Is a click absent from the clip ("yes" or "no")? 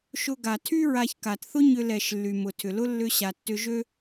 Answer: yes